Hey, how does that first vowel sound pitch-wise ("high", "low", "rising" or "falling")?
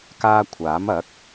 high